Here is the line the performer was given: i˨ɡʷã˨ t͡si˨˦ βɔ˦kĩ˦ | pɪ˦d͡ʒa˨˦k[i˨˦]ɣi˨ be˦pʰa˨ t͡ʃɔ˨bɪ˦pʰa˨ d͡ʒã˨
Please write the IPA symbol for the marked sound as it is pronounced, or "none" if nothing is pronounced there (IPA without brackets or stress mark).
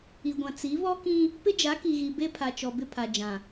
i˨